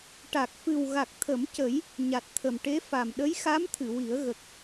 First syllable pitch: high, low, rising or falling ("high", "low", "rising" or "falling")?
low